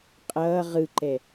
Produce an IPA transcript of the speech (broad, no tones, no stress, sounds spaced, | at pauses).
qʼ ʌː ʁ ɯ ǃ ɛ